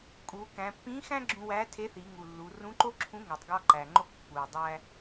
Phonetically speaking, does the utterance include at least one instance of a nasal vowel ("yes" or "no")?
yes